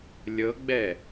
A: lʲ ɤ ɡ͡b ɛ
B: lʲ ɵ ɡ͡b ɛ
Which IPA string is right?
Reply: A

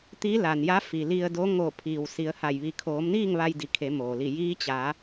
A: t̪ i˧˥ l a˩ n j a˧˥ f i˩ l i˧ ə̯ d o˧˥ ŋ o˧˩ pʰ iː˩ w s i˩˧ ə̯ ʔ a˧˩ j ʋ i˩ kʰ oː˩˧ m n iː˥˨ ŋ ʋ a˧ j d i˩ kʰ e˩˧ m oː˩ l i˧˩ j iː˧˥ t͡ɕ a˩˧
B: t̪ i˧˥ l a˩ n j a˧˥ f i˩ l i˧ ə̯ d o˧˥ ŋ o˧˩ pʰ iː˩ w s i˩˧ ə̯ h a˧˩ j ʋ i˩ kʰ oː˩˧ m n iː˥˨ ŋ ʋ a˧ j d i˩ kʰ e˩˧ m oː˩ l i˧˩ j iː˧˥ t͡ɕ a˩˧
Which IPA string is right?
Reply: B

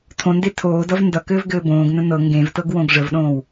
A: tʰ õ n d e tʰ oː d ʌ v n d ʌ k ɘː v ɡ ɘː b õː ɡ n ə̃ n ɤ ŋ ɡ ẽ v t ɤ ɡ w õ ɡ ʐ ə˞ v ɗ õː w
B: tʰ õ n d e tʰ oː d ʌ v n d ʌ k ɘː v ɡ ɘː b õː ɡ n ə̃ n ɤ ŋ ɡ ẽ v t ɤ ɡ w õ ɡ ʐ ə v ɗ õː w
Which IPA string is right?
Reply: B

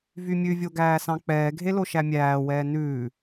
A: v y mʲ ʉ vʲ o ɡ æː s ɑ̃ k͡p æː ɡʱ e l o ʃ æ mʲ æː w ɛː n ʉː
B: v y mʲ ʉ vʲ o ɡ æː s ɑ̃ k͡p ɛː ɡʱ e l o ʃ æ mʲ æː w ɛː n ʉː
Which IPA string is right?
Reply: B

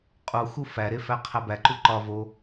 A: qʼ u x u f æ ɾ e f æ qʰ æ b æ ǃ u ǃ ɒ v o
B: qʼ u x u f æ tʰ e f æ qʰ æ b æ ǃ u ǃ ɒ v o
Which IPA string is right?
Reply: A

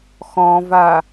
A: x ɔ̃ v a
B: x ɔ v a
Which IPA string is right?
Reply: A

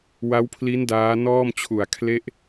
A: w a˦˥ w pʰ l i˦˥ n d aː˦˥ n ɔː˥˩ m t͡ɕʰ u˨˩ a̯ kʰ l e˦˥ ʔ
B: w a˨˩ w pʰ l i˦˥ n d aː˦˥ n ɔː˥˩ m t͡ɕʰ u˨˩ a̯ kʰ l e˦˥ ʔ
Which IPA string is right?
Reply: A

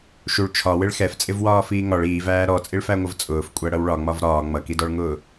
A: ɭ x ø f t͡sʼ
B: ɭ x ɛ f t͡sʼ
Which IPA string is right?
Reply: B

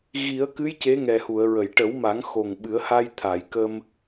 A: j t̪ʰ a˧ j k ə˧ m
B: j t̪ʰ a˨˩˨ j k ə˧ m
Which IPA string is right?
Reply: B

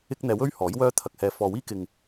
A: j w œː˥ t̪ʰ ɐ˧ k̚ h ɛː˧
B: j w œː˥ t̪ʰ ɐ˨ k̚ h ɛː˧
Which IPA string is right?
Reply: A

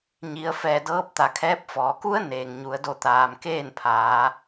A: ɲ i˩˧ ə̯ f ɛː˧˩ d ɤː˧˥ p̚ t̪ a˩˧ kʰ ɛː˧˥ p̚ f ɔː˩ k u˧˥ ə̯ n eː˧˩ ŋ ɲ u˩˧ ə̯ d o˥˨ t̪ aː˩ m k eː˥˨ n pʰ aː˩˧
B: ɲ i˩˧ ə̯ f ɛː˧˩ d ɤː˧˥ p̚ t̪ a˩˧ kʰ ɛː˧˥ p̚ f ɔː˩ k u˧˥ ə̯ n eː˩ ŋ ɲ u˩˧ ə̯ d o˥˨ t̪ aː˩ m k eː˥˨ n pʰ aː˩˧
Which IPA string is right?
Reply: B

